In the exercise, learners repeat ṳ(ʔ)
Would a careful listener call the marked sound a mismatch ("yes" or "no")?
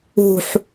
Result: yes